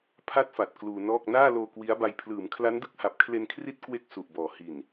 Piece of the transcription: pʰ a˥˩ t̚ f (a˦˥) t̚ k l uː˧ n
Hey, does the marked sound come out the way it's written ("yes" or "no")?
no